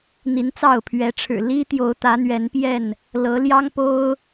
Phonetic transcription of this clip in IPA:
n̪ i˨˦ n t͡s ɑ˥˨ ʊ̯ pʰ ɥ ɛ˨˦ ʈ͡ʂʰ ɻ̩˨˩ l i˦ t̪ j o˨˦ ʊ̯ t̪ ä˨˦ n̪ ɥ ɛ˨˦ n p j ɛ˥˨ n | l ɤ˨˦ l j ɑ˦ ŋ p o˦ ʊ̯

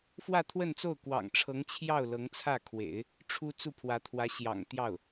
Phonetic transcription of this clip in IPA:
f w ä˥˧ t̪ʰ w ə˥˧ n t͡s o˥˩ ʊ̯ k w ɑ̰˨˩ ŋ ʈ͡ʂʰ ɤ˧˥ ŋ t͡ɕʰ j ɑ˥˩ ʊ̯ l ɤ˧˥ ŋ t͡sʰ ä˥˩ kʰ w ḛ˨˩˦ ɪ̯ | ʈ͡ʂʰ u˥ t͡s u˥˩ pʰ w ä˧˥ t̪ʰ w ä˧˥ ɕ j ɑ̰˨˩ ŋ t̪ j ɑ˥˩ ʊ̯

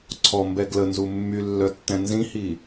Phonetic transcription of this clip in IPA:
ǀʰ ɔ m b ɛ ɡ l ə n z u mː y lː œ tː ɛ̃ n z ĩ h i

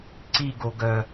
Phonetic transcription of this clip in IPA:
ǀ i ɡ o ɡ œ

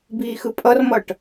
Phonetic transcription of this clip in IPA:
b iː x ɯ pʼ ʌ r m ʌ ʈ

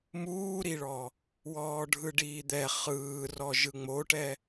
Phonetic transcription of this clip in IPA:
m uː ɾ i ɭ ɔ | w ɔː ɖʱ ɯ ɖ iː d̪ ɛ χ ɯː r ɔ ʒ ɯ ŋ͡m o ʈ ɛ

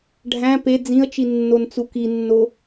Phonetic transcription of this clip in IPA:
ɖʱ æ̃ p e d͡z ĩ ə̯ t͡ʃ i nː o n t͡s u k i nː o

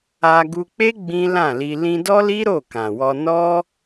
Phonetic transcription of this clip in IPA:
a˧ ɡ u˧ k͡p e˦ ɡ͡b ĩ˦ l ã˦˨ l i˧ l ĩ˧ d ɔ˦ l i˦ ɾ o˦˨ k ã˨ w ɔ˧ n ɔ˦

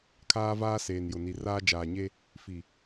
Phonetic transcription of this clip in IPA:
kʰ aː˦ v aː˦ s eː˨ n j ʊ˨ n i˨ r aː˦ d͡ʒ aː˨ ɲ e˦ | f i˨

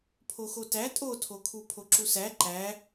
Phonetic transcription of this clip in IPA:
pʰ o x o t æ tʼ o tʰ o kʰ u pʰ o ǁ u s æ ǃ æ

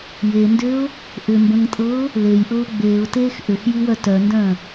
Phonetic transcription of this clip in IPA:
j e n d ʏː ʊ̯ | ʔ ʏ m b ə̃ ŋ tʼ ɤː ʊ̯ | l e j ʔ ɤː ɡ͡b eː ʊ̯ t eː x ʔ ʏ x j i w œ t œ n d œ̃ː

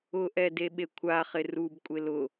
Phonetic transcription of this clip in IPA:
ʊ ʔ ɛ d e ɓ e kʷʰ a χ ɪ r u b kʷʼ e l ʊ

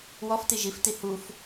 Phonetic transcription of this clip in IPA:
w ɔ f t i ʒ i f t i h u f

